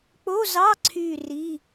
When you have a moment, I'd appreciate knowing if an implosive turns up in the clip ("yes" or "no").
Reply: no